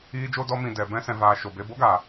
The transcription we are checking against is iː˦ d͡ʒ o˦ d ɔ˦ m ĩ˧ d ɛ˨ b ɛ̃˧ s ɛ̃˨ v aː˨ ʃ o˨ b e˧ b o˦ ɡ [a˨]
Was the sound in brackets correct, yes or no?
yes